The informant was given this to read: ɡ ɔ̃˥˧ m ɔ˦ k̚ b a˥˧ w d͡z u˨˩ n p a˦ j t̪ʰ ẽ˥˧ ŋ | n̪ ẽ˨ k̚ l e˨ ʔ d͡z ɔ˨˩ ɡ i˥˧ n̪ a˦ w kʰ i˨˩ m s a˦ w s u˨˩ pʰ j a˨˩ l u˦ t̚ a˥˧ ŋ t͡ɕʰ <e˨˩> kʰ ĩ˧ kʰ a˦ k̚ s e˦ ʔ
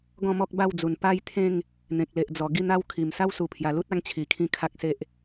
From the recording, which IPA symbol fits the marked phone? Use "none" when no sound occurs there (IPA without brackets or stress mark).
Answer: i˨˩